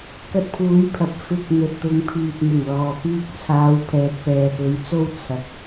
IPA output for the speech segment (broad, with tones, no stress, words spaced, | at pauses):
kɐ˧t̚pʰuː˨˥j pʰɐ˨p̚fɪ˧k̚ n̪ɵ˨t̚t̪ʊ˨˧ŋpʰyː˨t̚ n̪ʊ˨˩ŋlɔː˨ pyː˧k̚t͡sʰaː˨˧w pʰɛː˨t̚pɛː˨pɵ˨˥ɥt͡so˥w t͡sʰɐ˨k̚